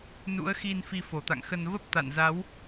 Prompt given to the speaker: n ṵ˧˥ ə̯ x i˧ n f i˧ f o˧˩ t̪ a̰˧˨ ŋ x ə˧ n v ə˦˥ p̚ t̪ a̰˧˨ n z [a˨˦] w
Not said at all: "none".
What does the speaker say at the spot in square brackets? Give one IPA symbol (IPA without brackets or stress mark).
a˨˦